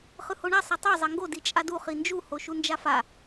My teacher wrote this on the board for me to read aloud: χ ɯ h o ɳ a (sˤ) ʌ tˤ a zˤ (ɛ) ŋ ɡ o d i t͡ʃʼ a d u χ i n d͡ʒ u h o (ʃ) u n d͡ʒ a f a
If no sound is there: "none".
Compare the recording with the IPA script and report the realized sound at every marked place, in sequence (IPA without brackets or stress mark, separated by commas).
sˤ, e, ʃ